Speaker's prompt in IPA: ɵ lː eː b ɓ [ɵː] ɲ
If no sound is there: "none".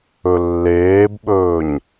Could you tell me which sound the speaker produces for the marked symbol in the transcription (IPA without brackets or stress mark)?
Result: ɵː